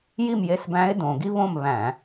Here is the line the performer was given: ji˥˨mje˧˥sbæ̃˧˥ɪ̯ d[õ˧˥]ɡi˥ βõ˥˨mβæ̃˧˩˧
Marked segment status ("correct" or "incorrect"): incorrect